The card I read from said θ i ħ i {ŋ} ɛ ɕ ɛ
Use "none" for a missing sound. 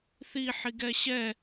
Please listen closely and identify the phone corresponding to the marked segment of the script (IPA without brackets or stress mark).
ɡ